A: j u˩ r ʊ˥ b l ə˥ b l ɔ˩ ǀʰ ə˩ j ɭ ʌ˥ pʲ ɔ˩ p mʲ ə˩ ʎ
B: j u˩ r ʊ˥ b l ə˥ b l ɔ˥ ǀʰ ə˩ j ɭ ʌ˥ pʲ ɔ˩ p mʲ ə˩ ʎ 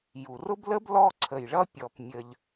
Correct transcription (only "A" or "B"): B